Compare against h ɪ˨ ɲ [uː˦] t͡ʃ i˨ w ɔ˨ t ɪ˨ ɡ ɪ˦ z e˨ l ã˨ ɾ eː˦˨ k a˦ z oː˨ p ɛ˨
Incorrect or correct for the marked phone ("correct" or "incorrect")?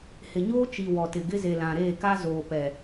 incorrect